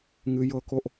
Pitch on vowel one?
high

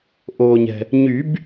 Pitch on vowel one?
low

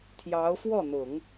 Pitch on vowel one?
rising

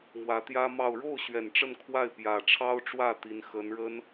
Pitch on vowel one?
rising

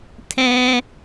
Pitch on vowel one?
high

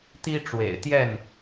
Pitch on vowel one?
high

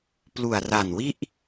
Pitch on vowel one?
low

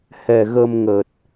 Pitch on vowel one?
low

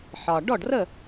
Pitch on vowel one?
low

